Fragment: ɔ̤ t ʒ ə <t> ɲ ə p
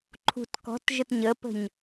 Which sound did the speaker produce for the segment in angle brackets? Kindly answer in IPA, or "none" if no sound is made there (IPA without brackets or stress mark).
t